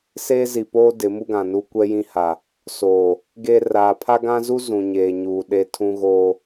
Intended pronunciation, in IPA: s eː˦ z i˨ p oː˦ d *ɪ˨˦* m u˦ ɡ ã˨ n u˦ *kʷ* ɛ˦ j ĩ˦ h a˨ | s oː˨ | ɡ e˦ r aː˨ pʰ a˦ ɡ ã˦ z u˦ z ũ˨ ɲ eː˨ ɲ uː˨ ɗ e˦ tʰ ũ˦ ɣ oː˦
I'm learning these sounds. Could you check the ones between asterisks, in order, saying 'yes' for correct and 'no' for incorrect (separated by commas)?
yes, yes